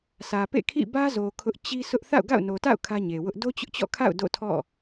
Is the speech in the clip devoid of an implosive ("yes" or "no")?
yes